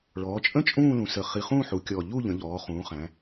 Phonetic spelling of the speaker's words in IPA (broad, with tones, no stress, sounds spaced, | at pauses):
ɭ ɔː˩˧ t͡ʃʼ ə̃˥˧ t͡ʃʼ ũː˥˧ l ũ˩˧ s ə˨˩ χ i˨˩ χ ũː˥˧ ħ u˩˧ kʲ ɔː˨˩ ʎ u˥˧ ʎ ə̃˩˧ ʎ ɔː˩˧ χ ũː˩˧ χ æ̃˩˧